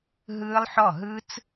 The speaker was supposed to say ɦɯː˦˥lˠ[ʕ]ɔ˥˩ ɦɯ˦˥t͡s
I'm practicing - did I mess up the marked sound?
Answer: yes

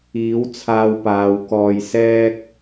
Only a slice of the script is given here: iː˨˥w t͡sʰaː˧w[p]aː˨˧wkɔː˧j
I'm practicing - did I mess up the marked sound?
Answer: no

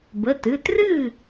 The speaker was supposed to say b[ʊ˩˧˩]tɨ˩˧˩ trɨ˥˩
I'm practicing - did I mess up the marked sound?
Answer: yes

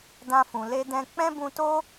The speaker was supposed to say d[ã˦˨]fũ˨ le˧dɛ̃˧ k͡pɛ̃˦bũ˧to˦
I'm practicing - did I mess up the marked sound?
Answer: yes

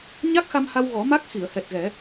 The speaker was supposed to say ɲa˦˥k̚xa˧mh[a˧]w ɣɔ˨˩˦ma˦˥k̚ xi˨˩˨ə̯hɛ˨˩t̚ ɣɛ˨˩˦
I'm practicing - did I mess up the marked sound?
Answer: no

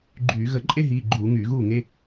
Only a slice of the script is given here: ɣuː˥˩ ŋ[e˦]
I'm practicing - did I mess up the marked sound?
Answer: no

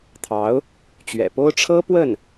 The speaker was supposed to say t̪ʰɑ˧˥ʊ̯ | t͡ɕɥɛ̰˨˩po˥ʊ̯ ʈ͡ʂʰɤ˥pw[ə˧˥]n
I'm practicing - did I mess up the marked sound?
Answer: yes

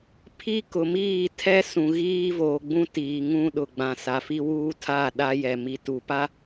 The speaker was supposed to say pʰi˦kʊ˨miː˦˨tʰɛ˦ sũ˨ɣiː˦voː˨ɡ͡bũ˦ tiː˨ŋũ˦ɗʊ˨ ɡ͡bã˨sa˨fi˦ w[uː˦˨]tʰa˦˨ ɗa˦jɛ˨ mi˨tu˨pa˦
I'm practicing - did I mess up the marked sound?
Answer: yes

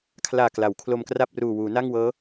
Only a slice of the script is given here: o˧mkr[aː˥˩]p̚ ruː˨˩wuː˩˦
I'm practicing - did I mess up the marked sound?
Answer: yes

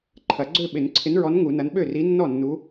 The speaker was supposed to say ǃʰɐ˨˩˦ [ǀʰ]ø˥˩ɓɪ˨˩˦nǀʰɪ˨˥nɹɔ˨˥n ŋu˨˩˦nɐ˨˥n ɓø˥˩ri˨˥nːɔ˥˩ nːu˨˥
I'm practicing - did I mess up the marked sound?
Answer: yes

